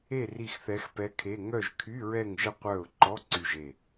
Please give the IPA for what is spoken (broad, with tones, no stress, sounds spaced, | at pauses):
e˦˨ r i˦˨ x θ ɛ˧˥ x p ɛ˧˥ kʰ e˧˥˧ ŋ œ˦˨ ʒ kʰ y˧˥˧ ɹ ɛ˦˨ ŋ ʒ ə˦˨ qʷ œ˦˨ ʊ̯ ǃ ɔ˧˥˧ ǀ y˦˨ ʒ e˦˨